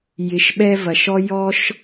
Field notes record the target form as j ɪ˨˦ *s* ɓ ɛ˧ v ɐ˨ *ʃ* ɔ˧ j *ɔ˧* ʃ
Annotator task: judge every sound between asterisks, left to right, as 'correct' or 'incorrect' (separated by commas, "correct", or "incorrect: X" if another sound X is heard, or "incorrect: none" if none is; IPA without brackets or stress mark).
incorrect: ʃ, correct, correct